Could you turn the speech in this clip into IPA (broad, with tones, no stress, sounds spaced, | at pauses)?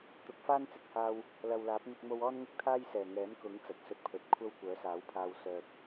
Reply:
t̪ ʊ˨˥ k̚ f aː˥ n t͡s ɪ˨ k̚ h aː˧ w | l ɐ˨ w l aː˨˥ p̚ n̪ ɪ˧ k̚ m o˧ w ɔː˥ n ŋ ɪ˥ k̚ t̪ʰ aː˥ j s ɛː˨˩ ŋ ɛː˨˥ m k ʊ˨˥ ŋ t͡s ɐ˨ t̚ s ɵ˧ t̚ pʰ ɵ˨ t̚ kʷʰ ɐ˥ w kʷ œː˨˥ s aː˨˥ w pʰ aː˧ w s œː˨ k̚